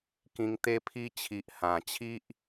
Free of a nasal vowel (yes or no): no